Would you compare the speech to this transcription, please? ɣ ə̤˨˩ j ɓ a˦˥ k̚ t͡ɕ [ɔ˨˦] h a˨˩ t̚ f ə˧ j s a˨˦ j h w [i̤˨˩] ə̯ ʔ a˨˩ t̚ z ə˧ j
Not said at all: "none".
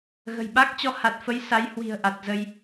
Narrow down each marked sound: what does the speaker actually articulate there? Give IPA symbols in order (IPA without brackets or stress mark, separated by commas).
ɔ˨˦, i̤˨˩